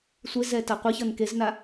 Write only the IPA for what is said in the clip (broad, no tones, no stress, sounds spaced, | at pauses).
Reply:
sʷ e z ɛ t a qʷ ə ç ʌ n k e z n a